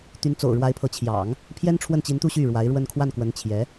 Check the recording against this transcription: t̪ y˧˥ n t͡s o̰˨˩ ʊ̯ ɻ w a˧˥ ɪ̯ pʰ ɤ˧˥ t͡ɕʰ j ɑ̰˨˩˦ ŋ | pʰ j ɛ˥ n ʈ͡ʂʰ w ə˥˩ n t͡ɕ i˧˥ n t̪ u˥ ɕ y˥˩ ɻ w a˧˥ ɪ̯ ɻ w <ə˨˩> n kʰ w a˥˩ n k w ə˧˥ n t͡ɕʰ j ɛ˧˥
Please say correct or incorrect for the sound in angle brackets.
incorrect